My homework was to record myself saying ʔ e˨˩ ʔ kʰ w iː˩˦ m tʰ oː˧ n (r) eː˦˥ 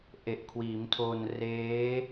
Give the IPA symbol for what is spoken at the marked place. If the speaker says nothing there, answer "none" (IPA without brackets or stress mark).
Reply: r